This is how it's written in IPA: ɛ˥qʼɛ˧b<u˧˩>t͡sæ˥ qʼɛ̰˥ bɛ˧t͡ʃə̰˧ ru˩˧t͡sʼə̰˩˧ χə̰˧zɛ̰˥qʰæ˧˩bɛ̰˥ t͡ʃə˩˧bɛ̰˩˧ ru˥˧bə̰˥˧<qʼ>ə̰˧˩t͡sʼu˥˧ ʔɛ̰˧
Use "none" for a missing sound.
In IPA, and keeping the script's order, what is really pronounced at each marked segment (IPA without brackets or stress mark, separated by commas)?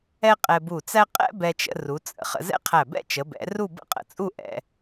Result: u˧˩, qʼ